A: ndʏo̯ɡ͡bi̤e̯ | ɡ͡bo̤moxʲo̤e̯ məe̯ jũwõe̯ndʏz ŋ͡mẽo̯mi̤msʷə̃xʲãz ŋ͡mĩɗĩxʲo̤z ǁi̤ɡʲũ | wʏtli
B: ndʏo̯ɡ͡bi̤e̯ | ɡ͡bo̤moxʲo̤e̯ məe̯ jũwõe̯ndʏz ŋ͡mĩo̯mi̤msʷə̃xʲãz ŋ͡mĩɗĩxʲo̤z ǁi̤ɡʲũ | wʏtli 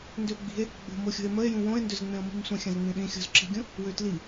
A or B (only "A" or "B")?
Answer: A